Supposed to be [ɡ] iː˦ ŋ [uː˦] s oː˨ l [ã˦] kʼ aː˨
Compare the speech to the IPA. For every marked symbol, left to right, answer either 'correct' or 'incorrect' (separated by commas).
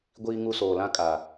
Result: incorrect, incorrect, correct